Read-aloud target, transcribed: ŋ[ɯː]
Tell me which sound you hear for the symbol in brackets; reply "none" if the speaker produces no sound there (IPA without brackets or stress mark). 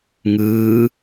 ɯː